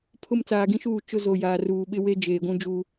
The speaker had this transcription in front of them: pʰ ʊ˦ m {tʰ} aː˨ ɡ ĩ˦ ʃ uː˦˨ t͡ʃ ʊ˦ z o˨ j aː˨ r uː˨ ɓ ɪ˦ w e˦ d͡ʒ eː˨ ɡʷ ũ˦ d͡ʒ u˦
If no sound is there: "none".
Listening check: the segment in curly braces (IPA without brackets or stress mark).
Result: t͡s